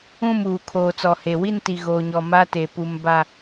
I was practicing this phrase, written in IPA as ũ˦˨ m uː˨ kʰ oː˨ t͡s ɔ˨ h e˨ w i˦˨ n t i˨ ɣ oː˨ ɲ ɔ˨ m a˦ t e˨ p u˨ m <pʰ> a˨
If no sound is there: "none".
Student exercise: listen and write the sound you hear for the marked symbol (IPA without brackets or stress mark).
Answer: b